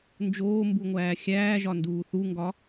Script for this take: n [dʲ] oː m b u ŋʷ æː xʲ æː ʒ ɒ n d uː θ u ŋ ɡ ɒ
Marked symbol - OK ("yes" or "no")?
no